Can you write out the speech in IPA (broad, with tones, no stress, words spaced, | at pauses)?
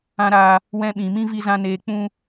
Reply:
ã˦ɾaː˧ | wɛ̃˦ɓĩ˨ mĩ˦vi˧zã˧ neː˨k͡pũ˧